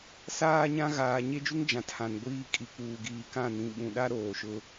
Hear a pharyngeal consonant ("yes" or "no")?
no